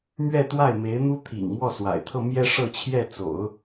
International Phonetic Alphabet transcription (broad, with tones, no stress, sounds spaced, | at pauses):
m ɥ ɛ˥˧ t̪ w a˥˩ ɪ̯ m e˧˥ ɪ̯ n̪ u˥ t̪ʰ ḭ˨˩ ŋ m w ɔ˥˩ s w a̰˨˩ ɪ̯ t̪ʰ ɤ˥˧ m j ɛ˥˧ ʂ ɤ˥˧ t͡ɕʰ j ɛ˥˩ t͡s o̰˨˩˦ ʊ̯